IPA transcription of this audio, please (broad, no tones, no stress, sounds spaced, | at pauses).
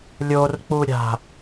lʲ o r k͡p u ɾʲ a̤